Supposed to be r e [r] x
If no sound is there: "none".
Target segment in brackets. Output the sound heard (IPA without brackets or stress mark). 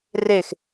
none